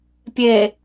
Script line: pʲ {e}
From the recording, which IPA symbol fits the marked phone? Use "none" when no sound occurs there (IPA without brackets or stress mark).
e